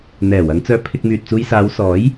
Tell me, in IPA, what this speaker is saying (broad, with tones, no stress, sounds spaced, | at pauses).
n̪ ɛː˨˩ w ɐ˨˧ ŋ t͡s œː˧ pʰ ɪ˧ k̚ m yː˨ t̚ t͡s uː˧ j s aː˨˧ w s ɔː˨˥ j